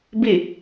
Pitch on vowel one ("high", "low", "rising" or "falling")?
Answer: falling